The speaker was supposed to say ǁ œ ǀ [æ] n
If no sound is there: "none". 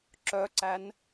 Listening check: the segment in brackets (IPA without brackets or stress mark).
æ